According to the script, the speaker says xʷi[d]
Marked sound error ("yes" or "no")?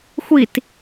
yes